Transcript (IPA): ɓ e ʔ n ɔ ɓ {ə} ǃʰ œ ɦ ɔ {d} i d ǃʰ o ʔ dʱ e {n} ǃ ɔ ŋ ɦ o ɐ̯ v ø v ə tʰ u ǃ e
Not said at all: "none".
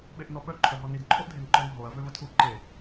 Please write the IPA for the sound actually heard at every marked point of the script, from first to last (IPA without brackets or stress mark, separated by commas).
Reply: œ, n, n